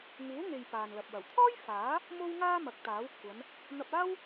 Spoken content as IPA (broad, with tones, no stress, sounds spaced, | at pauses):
ŋ uː˨˥ ŋ e˨ j p aː˨ n l ɐ˨ p̚ w ɐ˨˩ w t̪ʰ ɔː˥ j f aː˨˥ | m o˥ w ŋ aː˥ m ɐ˨˥ k̚ t̪ aː˨˥ w kʷʰ ɐ˨˧ n | n̪ ɐ˧ p̚ aː˥ w